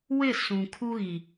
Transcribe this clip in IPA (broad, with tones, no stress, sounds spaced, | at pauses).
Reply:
w ɪ˦˨ s ũ˨ kʰ u˦ ɣ i˨